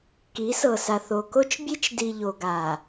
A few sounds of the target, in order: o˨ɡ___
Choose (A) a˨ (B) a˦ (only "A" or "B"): A